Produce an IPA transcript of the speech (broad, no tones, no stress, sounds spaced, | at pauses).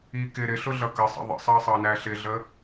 i k ɪ ɾ ɪ ɬ ʊ ɮ ʌ k ə sˤ ə̰ ðˤ ə̰ sˤ ɑ sˤ ɑ n æ ɬ ɪ ɮ ə